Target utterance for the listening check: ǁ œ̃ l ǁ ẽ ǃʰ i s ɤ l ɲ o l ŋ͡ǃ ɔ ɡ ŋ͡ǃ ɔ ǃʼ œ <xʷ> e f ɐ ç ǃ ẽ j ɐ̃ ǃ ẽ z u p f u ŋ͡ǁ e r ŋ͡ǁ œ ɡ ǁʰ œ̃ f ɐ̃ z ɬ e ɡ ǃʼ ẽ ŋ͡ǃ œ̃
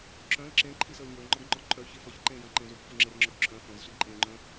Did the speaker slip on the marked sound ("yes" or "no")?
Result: yes